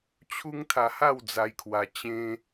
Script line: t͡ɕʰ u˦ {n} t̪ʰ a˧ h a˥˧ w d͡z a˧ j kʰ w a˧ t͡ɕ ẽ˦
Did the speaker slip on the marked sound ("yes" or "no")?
yes